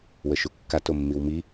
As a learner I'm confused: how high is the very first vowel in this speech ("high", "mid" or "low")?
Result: mid